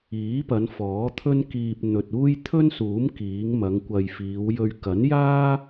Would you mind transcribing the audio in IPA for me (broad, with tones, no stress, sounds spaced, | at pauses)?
iː˨˥ p ɐ˨˧ n f ɔː˨˥ t̪ʰ ɵ˥ n k iː˧ p̚ n̪ ɵ˨ t̚ uː˥ j t̪ʰ ɵ˥ n s uː˨˥ m k iː˨˥ ŋ m ɐ˨˧ ŋ kʷ ɐ˨ j f iː˨˧ w j ɵ˧ ɥ k ɐ˨˥ n j aː˥